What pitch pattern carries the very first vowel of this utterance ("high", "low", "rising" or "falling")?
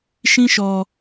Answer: high